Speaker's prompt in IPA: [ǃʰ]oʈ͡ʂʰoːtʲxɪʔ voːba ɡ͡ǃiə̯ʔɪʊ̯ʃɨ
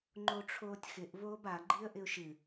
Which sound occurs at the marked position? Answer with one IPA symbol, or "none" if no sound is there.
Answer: ŋ͡ǃ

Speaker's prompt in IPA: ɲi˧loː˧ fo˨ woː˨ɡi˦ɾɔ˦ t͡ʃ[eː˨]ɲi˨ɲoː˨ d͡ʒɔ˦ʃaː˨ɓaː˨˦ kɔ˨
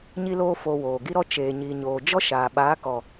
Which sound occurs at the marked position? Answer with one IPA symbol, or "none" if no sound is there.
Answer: eː˨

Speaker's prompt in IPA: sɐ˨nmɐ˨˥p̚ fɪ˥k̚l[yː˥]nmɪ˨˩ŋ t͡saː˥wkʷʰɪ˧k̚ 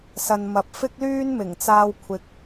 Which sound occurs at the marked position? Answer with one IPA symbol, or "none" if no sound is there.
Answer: yː˥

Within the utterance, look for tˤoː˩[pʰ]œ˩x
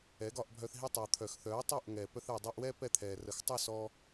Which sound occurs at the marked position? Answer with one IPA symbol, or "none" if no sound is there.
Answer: t̪ʰ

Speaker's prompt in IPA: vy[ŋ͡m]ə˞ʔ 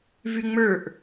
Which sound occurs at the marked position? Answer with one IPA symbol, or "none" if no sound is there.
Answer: ŋ͡m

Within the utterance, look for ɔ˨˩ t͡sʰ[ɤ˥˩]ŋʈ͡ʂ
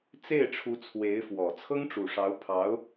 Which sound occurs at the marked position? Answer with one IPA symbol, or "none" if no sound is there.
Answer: ɤ˥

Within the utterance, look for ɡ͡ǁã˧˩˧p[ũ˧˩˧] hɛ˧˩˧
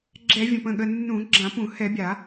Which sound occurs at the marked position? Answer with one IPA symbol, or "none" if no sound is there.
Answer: ũ˧˩˧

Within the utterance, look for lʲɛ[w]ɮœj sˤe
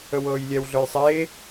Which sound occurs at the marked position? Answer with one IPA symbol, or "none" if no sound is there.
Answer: w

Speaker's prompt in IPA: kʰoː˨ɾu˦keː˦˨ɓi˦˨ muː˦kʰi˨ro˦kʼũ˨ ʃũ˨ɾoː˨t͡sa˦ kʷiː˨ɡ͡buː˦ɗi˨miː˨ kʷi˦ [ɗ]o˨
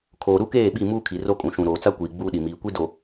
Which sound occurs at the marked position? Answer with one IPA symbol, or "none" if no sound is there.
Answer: d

